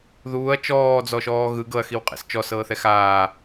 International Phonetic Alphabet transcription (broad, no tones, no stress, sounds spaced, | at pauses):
ð uː ɐ̯ t͡ʃ ɔː d͡z ɔ ʃ ɔː ɣ ɯ ɡ ɤ ɐ̯ x i w qʼ ḛ s t͡ʃ ɔ s ɤː θ ɛ x aː